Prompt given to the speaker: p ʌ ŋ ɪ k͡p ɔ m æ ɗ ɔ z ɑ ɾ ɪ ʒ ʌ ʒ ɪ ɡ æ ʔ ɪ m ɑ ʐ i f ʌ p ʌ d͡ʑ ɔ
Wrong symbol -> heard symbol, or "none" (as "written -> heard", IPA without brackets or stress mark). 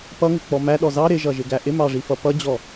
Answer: none